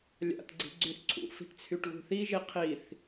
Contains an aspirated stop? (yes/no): yes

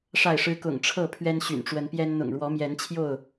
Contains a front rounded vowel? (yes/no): yes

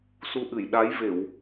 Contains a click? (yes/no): no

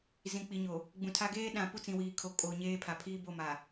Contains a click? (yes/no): no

